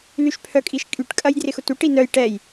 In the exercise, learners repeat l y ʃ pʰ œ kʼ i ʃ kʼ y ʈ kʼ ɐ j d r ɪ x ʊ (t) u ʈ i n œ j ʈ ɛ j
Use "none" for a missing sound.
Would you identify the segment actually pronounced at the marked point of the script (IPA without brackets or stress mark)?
t